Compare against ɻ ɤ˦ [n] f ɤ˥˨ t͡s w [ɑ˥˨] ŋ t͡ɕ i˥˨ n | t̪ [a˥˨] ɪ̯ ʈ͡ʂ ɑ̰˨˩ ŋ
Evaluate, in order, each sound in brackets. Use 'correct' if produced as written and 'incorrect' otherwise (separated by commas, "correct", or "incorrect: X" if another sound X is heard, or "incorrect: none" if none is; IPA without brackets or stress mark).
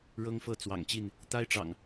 incorrect: ŋ, incorrect: ɑ̰˨˩, incorrect: a˦